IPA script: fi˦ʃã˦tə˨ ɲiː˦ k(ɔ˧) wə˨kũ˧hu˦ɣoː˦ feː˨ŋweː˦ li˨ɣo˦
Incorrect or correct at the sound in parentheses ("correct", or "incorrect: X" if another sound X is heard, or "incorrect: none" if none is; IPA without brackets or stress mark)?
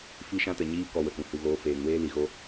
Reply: correct